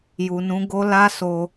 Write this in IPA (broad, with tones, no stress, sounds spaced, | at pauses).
j u˨ n ũ˨˦ ɡ o˦ l a˦ s o˧